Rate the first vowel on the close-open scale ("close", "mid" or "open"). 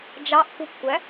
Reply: open